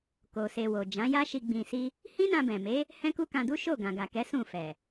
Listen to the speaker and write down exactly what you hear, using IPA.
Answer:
k o˨ s e˨ w o˨ d͡ʒ ã˨˦ j a˦ ʃ i˧ ɡ͡b ĩ˧ s i˦ | h ĩ˦ n ã˧ b ɛ̃˨ m e˨˦ | h ɛ̃˦ k u˦ k ã˧ d u˦ ʃ o˦˨ ɡ ã˨ ɡ a˨ k ɛ˨˦ s ũ˦˨ f ɛ˨

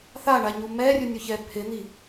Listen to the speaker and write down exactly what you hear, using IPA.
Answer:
θ a ɳ a ɲ u m ɛ rʲ u nʲ ʊ ç ɛ pʰ ɪ n̪ i

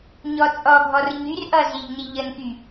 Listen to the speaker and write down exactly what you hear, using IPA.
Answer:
ɲ ɔ t͡sʼ ɔ ɡʱ ɔ r ɲ y r ʔ ʌ z i ʎ n i ʎ ə n k y

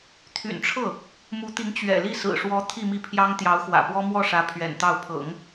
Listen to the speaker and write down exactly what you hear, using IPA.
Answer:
t̪ʰ y̰˨˩ n ʈ͡ʂʰ ɤ˥˩ | m u˧˥ t̪ i˧˥ ŋ t͡ɕ ɥ ɛ̰˨˩ l i˥˩ s ɹ̩˨˩ ʂ w ɔ˧˥ t̪ʰ i˥˧ m i˥˩ pʰ j ɑ˥ ŋ t̪ j ɑ˧˥ ʊ̯ x w ä̰˨˩ p w ɔ˥ m w ɔ˥˩ ʂ ä˧˥ pʰ ɥ ɛ̰˨˩ n t̪ ɑ˥˩ ʊ̯ pʰ ɤ̰˨˩˦ ŋ

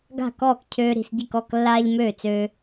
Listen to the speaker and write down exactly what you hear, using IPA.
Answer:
ɡ a̤˥˨ k ɔː˥˨ k cʰ øː˦ ɾ i̤˥˨ s ɟ i˥˨ k ɔ˥˨ k lː aː˦ ʎ m øː˥˨ t͡s øː˦

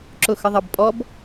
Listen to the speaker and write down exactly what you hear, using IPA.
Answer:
ǁ ʊ x ə ðˤ ɑ b pʼ ɔ b

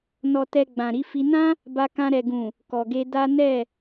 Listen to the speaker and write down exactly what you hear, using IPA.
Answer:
n ɔ˨ t ɛ˨ ɡ͡b ã˨ ɾ i˧ f i˧ n ã˦ | b a˧ k ã˧ ɾ ɛ˨ ɡ ũ˨ | k ɔ˨ ɡ e˧ d a˦ n ɛ˦˨

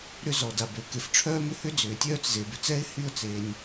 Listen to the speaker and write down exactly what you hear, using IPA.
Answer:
ɾ ʏ˥ z ɔ˩ d a˩ b ø˩ k e˩ f ʈ͡ʂʰ œː˥ m ʏ˥ h ʏ˥ d͡z ʏː˩ tʲ œː˥ t͡s z e˩ b ʏ˩ t͡s ɛ˥ ɪ̯ h y˥ ʊ̯ t͡s e˩ nʲ

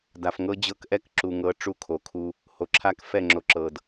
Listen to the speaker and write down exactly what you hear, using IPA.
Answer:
d a˨ f ŋ ɤ˦ d͡ʑ ɤ˦ k ʔ ɛ˦ k ǁ u˨ ŋ ɤ˨˦ ʈ͡ʂ u˦ kʰ o˨ kʰ u˦ | h o˨ ǁʰ a˦ k f ɛ˦˨ ŋ͡ǁ o˨ ǁ ɤ˨ d

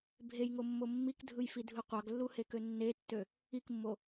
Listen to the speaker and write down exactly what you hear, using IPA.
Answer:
bʱ e j ŋ o mː o mː i k dʱ ɯ j f i dʱ ɯ qʷ ɑ ɡ lː u h e k ø nː e tː ø | i k mː o

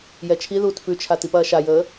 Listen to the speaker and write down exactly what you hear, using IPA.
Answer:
j ɛ t͡ʃʰ i ð uː t f ʉ t͡ʃʰ a t i p ɐː ʃ a j əː

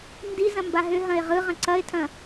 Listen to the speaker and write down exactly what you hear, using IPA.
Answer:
n d i z ɐ̃ m b a ɦ ʏ ɦ ɐ̃ ɪ̯ ʁ ɯ ʁ ɐ̃ ǀ ɐ ɪ̯ tʰ ɐ̃

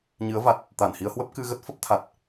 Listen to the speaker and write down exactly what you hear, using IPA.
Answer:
ɲ ɨ˨˦ ə̯ v a˨˩ t̚ | t̪ a˧˩ n h i˧ ə̯ h w ə˦˥ p̚ k ɨ˧ ɣ ə˦˥ t̚ f ə˦˥ p̚ t̪ʰ a˨˩ t̚

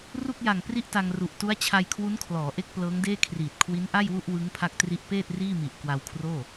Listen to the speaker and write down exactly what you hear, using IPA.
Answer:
r u˥˩ k̚ j a˨˩ ŋ p r i˥˩ ʔ t a˧ ŋ r u˨˩ ʔ t u˦˥ a̯ t͡ɕʰ a˧ j kʰ w u˦˥ n kʰ l ɔː˩˦ ʔ e˥˩ k̚ p l ɤː˦˥ ŋ d eː˥˩ kʰ r iː˨˩ t̚ kʰ w i˦˥ n ʔ a˥˩ j w u˥˩ ʔ w ɯ˦˥ ŋ pʰ a˦˥ k̚ t r i˦˥ ʔ p eː˥˩ t̚ r iː˥˩ m i˨˩ ʔ k w a˧ w kʰ r oː˥˩

